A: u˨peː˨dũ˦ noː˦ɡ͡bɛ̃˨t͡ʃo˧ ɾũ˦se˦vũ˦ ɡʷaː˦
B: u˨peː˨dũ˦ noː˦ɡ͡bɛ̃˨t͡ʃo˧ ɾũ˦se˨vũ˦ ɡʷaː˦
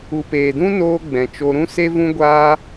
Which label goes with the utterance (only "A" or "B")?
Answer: A